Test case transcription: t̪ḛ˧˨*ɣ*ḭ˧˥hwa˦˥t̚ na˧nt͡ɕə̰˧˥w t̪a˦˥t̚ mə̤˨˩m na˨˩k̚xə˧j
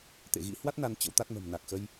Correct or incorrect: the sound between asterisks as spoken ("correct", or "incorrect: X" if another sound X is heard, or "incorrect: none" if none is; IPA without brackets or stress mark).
correct